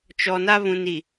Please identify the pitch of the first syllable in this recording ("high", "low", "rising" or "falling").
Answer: low